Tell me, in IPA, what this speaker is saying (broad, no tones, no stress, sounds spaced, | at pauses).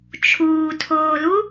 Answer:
t͡ʃʰ uː tʰ oː l u